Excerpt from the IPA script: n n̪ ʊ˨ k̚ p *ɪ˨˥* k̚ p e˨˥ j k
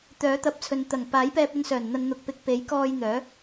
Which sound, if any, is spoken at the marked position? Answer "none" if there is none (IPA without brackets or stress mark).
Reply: ɪ˨˥